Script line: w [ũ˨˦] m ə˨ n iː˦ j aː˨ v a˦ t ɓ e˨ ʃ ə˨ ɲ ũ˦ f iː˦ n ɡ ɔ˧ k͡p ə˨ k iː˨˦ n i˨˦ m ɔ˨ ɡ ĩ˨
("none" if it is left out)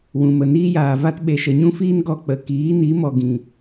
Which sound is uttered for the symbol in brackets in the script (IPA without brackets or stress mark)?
ũ˨